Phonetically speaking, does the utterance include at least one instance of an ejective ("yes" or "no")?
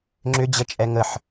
yes